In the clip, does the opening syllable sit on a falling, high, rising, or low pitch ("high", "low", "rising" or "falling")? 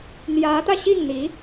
rising